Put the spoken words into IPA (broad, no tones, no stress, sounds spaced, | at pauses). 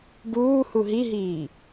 b uː h u ɦ i ɦ iː